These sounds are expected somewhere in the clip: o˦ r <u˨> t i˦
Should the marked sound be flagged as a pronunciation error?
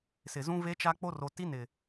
yes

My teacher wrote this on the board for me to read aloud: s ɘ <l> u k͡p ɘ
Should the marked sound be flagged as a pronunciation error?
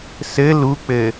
no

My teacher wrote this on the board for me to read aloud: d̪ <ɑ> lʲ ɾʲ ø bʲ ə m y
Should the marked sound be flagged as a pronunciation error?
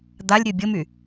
yes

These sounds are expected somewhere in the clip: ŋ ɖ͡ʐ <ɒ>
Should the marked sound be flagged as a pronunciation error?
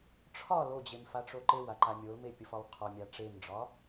no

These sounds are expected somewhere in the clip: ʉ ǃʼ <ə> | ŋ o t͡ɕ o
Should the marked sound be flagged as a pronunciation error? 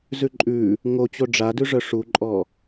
yes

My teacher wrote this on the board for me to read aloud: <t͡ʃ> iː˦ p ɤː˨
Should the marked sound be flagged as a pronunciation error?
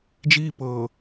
yes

